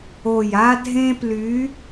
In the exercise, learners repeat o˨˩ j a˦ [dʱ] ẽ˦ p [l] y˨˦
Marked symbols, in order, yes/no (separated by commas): yes, yes